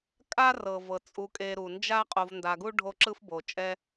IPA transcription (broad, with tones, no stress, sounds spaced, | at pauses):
kʼ a˦ r ɤ˩ v ɤ˩ t͡sʼ u˨ kʼ e˨ ɾ u˩ n d͡ʒ a˦ qʼ o˨ v n d a˨ ɡ u˦ ɖʱ o˦ ǁ ɯ˦ f b o˨ t͡ʃʼ ɛ˦